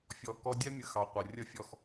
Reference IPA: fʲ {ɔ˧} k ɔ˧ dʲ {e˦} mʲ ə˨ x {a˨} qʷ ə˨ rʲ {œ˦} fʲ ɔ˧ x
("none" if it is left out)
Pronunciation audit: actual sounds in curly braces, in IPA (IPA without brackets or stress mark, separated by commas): ɔ˨, ɛ˦, ɑ˨, ə˦